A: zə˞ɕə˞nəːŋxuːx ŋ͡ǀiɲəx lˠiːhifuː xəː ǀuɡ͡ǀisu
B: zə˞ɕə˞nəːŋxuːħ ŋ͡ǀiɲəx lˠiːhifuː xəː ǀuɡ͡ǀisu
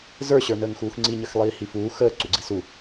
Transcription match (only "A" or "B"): A